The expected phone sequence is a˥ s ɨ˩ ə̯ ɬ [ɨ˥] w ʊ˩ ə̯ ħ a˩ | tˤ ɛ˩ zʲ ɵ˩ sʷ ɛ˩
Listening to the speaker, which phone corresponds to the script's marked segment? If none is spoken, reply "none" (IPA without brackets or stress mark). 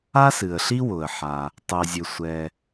i˥